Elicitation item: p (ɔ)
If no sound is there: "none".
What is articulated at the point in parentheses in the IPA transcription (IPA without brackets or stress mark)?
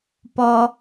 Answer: ɔ